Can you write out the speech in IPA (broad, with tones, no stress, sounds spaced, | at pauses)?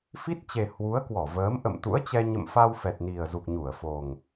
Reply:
f i˦˥ t̚ t͡ɕ e˨˩ h w u˨˦ ə̯ k w ɔ˧˩ v əː˨˦ m ʔ ə̰˧˨ m t̪ ṵ˧˥ ə̯ t͡ɕ ɛ˧ ɲ ə̰˧˨ m f a˧ w f ɛ˨˩ t̚ n i˨˩ ə̯ z u˨˩ k̚ ɲ u˧˩ ə̯ f o˨˩ ŋ